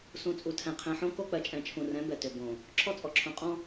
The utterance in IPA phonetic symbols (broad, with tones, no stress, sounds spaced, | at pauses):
s ũ˨ t͡sʼ u˨ tʰ ɛ̃˨ qʰ ɛ̃˨ ħ õ˦ k o˦ k͡p ɜ˨ t͡ʃʼ ɛ̃˨ t͡ʃʰ ũ˨ r ɛ̃˨˦ b ɛ˨ t ʏ˨ b õ˨ | ǁʰ ɔ˦ t͡sʼ ɔ˨ ǁʰ õ˨ qʼ ɔ̃˦